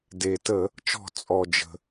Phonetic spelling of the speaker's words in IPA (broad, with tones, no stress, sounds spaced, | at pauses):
d e˩ t ə˧˩˧ | t͡ʃ ɔ̤˧˩˧ t͡sʼ ɔ˩ d͡ʒ ə̤˩